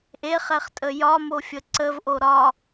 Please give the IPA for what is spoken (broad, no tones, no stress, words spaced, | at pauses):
ʔeχɛχtʼə jɒmofʲə ǀəvʔo ɾɒ